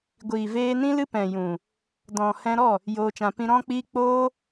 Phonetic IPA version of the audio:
ɡʷiː˨veː˧nĩ˦lɨ˦ pɛ̃˨jũ˨ | dɔ̃˨ hɛ̃˧ɾɔ˦˨ | joː˧t͡ʃã˧ pĩ˧ɾɔ̃˦k͡piː˦ k͡poː˦

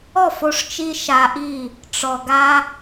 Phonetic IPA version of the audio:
ɔ˦˨fo˧ʂt͡ʃi˧ ʃa˧ʔi˦˨ | ʈ͡ʂɔ˨ɡa˧

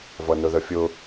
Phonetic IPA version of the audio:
vʌnʊðəfʲʊ

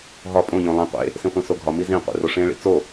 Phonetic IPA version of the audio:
ɦɒ pʼõ ʎõlˠẽ qʷḛ | sĩχʷĩsoɡʱɒ mizĩ qʷḛroʂẽ ɭḭt͡so

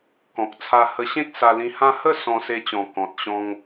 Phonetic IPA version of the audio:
kɔ̃˨k̚t͡sʰa˧hə˧ɕẽ˦k̚ sa˧lĩ˧hã˦ hə˥˧ sɔ̃˧se˧t͡ɕɔ̃˨˩ kɔ̃˨t̚ɕɔ̃˧ŋ

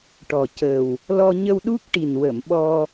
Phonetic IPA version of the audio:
ʈɔ˨˩ cə˨˩w | lɔ˧ɲə˧w ɗu˦˥k̚ʈi˨˩nwə˨˩˨m ɓɔ˧

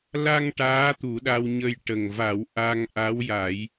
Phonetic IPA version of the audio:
la˧ŋ ʈaː˧˥t̪u˨˩˦ɗa˧wɲə˧j ʈə˨˩ŋva˨˩˦w ʔa˧ŋʔa˧˥wja˨˩˦j

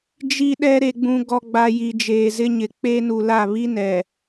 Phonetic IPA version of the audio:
d͡ʒi˦ɗɛ˦ ɾe˨ɡ͡bũ˨ɡɔ˨ɡ͡ba˨ ji˨d͡ʒeː˨zɪ˦ɲɪ˨ k͡pe˦nu˨la˦˨ βi˦nɛ˨

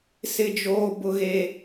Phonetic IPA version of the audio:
sɪ˦d͡ʒoː˦bʊ˦ɣe˦

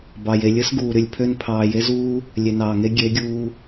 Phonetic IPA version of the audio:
bɑ˨j e˨lʲɯ˦s ɡuː˨ɾy˨lʲpʰø˦n pʰɑː˨je˦zuː˦ | lʲe˨nɑː˨ŋe˦ ɡʲe˨˦ɡʲuː˧

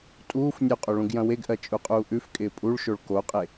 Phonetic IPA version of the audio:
tʼuːf nʲuqʼo ɭũɡjɐ̃weɡʔɜ t͡ʃʼuqʼuːʔʉfkʼɪː pʼuɭʃoɭ koqʼe

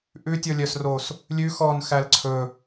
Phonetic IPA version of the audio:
ʔʉtʲɔlʲœsros | lʲʉ xɔnxæl ǀʰɵ

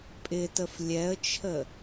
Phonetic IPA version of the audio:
pʼɪtəf lʲɛə̯t͡ʃʰə

